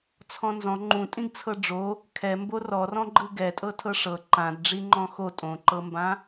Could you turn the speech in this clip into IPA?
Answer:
t͡sʰ ɔ̃ n z ɔ̃ ŋ͡ǃ ũ tʼ ĩ ɡ t͡sʰ ɤ ɖ͡ʐ o | kʰ ɛ m b o r ɔ r ɔ̃ ɡ͡ǃ ɯ ɡ ɛ tʼ ɤ tʰ ɤ ʂ ɤ ǃ ã d ɖ͡ʐ i ŋ͡ǃ ɔ̃ x o tʼ õ ǃ ɤ m b ã

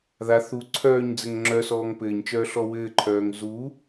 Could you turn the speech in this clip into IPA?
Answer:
ð a θ u ǀʰ œː ɲ d͡z ɘ ŋ ŋ͡ǁ œ s ɔː ŋ p ɘː ɲ t͡ʃ œː ɬ ɔ w ɘː ǃʰ œː ŋ z u

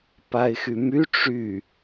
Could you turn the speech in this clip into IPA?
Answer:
p a ɪ̯ x y m y ʈ͡ʂ y

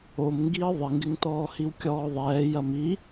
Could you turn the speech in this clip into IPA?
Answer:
o m ŋ ɡ i ə̯ ðˤ ɪ ŋ ɡ ɪ ŋ t ɔː h i w kʲ ɔː ðˤ ɛː j ɐ m i

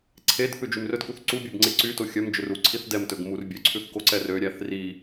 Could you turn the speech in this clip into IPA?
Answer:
ǀʰ e d θ ʉ d͡ʒ y m r ɵ d k u θ ǀ u bʲ ø b ŋ͡ǀ e ǀ y t o xʲ œ m d͡ʒ ɵ r u ǀʰ i θ d ɛ m t ɵ ɡ m u r bʲ ø ǀʰ ʉ θ k o ǀ ɛ r ø ɾʲ æ θ r i

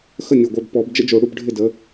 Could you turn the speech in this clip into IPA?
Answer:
x ə˥˩ nʲ ə˧˩ ɡʷ œ˧˩ b p ɔ˨˩˦ b d͡ʒ ə̰˦˥ d͡ʒ o˨˩˦ ɽ u˥˧ b ɖʱ ɪ˥˩ d ə˨˦

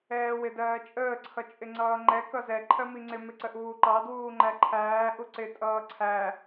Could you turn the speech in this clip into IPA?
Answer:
ɛː w ɪ d ɜː t͡ʃʼ əː ǀʰ ʌ t͡ʃʼ ɪ ŋ͡ǀ ʌː ŋ͡ǃ ɛ k ʌ z ɛ ǃʰ ɜ m i ŋ͡ǀ ɪ m ɪ ǀ ə ʔ uː ǃ ɑ d w uː ŋ͡ǃ æ ǃʰ æː ʔ u ǀ ɪ tʼ ʌː ǀʰ æ

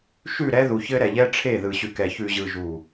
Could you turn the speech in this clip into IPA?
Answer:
ʃ ʉ˦˨ ɾ ɛ˦ ð u˨ ç ɘ˦ ɾ ɛ˨ ʎ ɛ˦ ʈ͡ʂʰ e˦˨ ð ɯ˨ ɕ ʉ˨ k ɛ˨ ç ʉ˨ ʑ ɯ˨ ʒ u˨

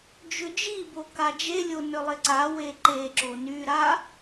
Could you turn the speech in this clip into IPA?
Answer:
d͡ʒ ʏ d͡ʒ i b o k a d͡ʒ e lʲ o n ʏ lˠ ɪ ǀ a w e ǃ e ǁ o n y ɾ a

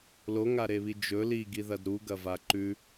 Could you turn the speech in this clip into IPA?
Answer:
l o ŋ a ɾ e β i d͡ʒ ɵ l i ɡ i ð ɐ d ɾ u ɡ ɐ v a ǃ ʉ

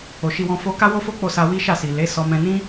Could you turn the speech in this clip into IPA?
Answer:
o˨ ʃ i˧ w ɔ̃˧ f o˧ k a˦ w o˦ f o˦ k͡p o˦˨ s a˧ w i˦ ʃ a˦˨ s i˨ l e˨˦ s ɔ˧ m ɛ̃˧ n ĩ˦

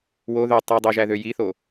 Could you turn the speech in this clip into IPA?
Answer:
w o ð ø tˤ ɯ dˤ ø ʒ æ ð ø j i θ o

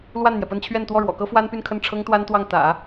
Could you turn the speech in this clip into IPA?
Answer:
l w a˥˩ n n̪ j ɛ˩ p ə˥˧ n t͡ɕʰ ɥ ɛ˥˧ n t̪ w ɔ˥˩ ɻ w ɔ̰˨˩ k ɤ˥ f w a˥ n p y˥˧ n kʰ ə˥˩ n ʈ͡ʂʰ ɤ˥ ŋ t̪ w a˥ n t̪ w ɑ˥˩ ŋ t̪ ä̰˨˩˦

